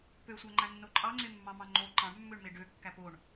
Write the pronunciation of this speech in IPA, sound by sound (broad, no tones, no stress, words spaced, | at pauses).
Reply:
pøsʷæŋ͡ǃæ̃nːo ǃʼɑŋ͡ǀemːɑ̃mɑ̃ ŋ͡ǃo ǃɑ̃ɳmːøɳme ɖøkːæ poɳ